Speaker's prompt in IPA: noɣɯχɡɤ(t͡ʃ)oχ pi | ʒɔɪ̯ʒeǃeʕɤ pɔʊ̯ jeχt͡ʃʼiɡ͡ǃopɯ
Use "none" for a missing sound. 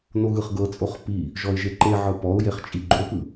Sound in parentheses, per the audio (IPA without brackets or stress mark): t͡sʼ